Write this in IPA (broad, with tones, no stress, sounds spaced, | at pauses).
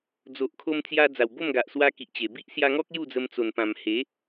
d͡z o˨ ʔ kʰ o˧ m t͡s j a˧ d͡z a˨˩ w b o˥˧ m ɡ a˨ ʔ s w a˧ k i˨ ʔ t͡ɕ e˨˩ b i˦ ʔ s j a˧ ŋ ɔ˦ k̚ j u˥˧ d͡z ə˧ m t͡s o˨˩ n p ã˨˩ m h e˨˦